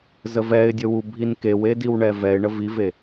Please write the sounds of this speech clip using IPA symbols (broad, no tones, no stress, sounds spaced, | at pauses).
z ə v ɛ ɪ̯ dʲ ə w u bʱ i n k e w e d i w ɳ ɛ v ɛ ɪ̯ ɳ ə v i v e